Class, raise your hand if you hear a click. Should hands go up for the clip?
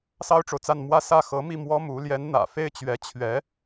no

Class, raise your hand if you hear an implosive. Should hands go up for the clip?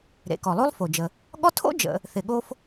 yes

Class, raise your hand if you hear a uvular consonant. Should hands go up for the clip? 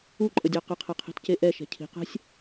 yes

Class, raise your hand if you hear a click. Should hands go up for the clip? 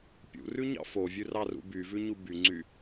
yes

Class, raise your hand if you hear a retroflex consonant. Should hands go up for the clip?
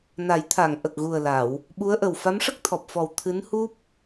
yes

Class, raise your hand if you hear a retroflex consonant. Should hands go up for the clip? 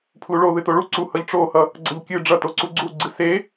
yes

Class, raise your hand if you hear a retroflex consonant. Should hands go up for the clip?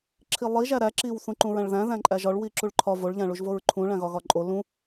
yes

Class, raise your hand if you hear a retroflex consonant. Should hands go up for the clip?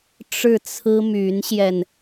yes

